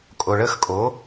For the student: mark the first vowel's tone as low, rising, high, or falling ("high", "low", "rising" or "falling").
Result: low